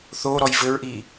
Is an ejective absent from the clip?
yes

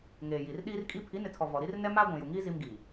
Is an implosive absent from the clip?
no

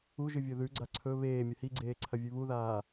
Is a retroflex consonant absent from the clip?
yes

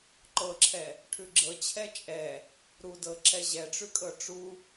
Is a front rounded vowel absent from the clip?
yes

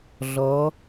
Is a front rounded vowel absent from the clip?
yes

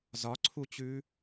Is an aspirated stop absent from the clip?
no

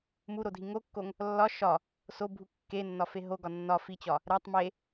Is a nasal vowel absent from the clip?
yes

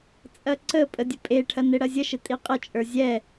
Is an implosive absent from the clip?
yes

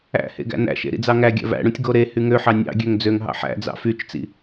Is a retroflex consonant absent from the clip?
no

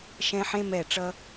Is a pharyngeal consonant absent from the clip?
no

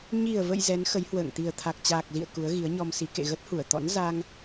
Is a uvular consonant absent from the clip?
yes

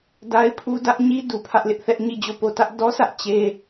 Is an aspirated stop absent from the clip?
no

